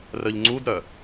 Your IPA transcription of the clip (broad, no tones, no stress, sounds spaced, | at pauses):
r œ ʎ ŋ͡ǀ u d ɾ œ